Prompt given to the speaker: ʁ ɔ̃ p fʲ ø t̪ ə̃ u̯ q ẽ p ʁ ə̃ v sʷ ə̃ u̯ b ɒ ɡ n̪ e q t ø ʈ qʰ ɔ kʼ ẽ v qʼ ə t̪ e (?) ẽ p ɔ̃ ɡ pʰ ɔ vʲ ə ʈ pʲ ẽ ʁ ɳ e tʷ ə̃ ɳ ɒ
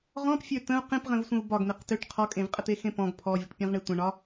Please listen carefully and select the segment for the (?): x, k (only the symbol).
x